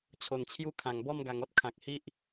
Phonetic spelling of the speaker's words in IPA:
t͡ɕʰ o˨˩ n t͡ɕʰ j u˦ kʰ ã˨˩ ŋ b ɔ˥˧ m ɡ a˨˩ ŋ ɔ˦ t̚ kʰ ã˨ k̚ h i˦ ʔ

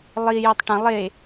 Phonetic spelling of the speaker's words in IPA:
lˠ i j ɵ tˤ ʈ ɐ̃ lˠ e

